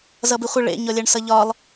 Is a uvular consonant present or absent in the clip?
present